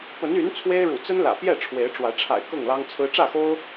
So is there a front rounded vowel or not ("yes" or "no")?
yes